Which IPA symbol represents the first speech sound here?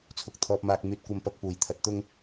t͡sʰ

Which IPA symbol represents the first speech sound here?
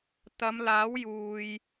t̪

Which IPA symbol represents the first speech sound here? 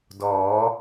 d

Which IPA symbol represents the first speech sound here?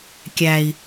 kʲ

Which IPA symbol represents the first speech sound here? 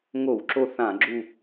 ŋ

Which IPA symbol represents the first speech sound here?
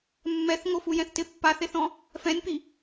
mː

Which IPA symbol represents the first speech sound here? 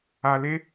a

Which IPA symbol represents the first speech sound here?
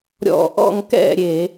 ɾʲ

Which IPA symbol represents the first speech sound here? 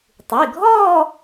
tˤ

